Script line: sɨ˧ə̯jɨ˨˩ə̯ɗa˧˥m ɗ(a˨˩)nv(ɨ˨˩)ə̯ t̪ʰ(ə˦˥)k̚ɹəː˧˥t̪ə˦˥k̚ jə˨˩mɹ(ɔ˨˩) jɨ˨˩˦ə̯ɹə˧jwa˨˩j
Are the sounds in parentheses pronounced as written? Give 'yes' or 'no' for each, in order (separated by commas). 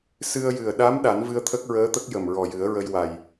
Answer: no, no, yes, yes